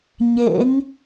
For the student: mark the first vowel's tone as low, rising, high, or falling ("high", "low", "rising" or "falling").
rising